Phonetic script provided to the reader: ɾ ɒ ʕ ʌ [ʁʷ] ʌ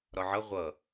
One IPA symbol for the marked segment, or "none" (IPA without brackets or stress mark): ʁʷ